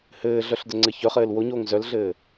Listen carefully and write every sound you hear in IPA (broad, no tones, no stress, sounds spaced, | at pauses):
h ɘː ɮ œ ɬ d ə ŋ͡ǀ ɘ ç œ χ ɘː l w o ɲ oː ŋ z œ l ɮ ɘː